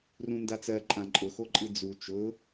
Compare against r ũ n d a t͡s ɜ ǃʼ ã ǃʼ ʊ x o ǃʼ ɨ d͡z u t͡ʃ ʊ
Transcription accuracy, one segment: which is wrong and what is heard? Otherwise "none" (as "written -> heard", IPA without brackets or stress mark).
none